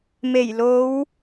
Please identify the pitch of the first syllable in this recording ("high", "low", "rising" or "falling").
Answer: low